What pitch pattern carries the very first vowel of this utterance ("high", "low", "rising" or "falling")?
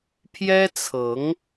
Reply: high